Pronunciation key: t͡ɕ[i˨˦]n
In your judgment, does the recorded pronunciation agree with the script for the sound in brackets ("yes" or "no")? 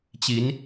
yes